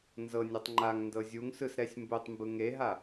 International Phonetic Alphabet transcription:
nzɤnʲɔtˤ ŋ͡ǃaŋndɤ zʲuŋsɯsɾɛsʲ mbutˤmbɯ ŋeɦa

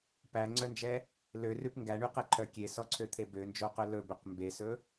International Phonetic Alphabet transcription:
pæŋ͡ǀœnd͡ʒɛ | lørʉp ŋɡæɳyqɛǃʰœ kʲesɔǀʰøt̪ʰe bønd͡ʒoqœ lɵbøq mbesɵ

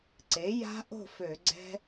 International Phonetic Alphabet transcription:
ǀe˩˥ ja̤˦˥ʔo̤˥˨ fø˧˩˧ɡ͡ǀɛ̤˦˥

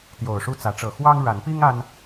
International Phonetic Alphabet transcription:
t̪jo˨˩ʊ̯ʂu˥˨ t͡sä˨˦ʈ͡ʂɤ˨˩ xwɑ˦ŋɻa˨˦npi˦ŋ a˦n

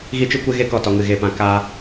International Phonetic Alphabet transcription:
ɣi˦t͡ʃɨ˦kʷe˦ ɣe˦kɔ˨tɔ˨ŋɨ˨ ɣe˨pã˨ ka˧

